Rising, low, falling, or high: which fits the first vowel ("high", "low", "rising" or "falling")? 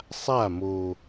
falling